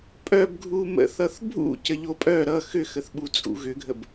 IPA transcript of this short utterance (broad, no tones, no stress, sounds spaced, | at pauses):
pʼ œ b ɡʱ u m ə̰ θ ʌ θ bʱ ṵ c ə ʎ o pʼ œ ɾ ʌ x ʏ x ə θ ɓ u t͡sʼ ṵ ɣ ʏ ɡʱ ə b